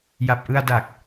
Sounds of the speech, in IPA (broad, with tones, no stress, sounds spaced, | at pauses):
j a˨˩ p̚ ʔ ɯ˧ a̯ d a˨˩ k̚